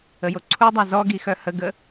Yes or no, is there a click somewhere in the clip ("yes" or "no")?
yes